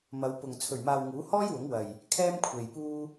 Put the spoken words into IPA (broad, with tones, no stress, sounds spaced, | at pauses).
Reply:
m ɐ˨˧ w p ʊ˨ ŋ t͡sʰ ɵ˨˩ ɥ m aː˨ w ŋ uː˨˥ h ɔː˥ j w ʊ˨˥ ŋ w ɐ˨ j | kʰ ɛː˥ m kʷʰ e˨ j p uː˥